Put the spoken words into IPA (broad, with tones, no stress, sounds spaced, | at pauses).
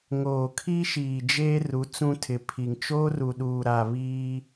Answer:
ŋ oː˨ kʰ i˦ ʃ iː˨ d͡ʒ eː˦ r u˨˦ t͡s ũ˦ tʰ ɪ˨ pʰ i˨ ŋ t͡ʃ oː˦ r u˨ ɗ uː˨ ɾ a˨ β iː˦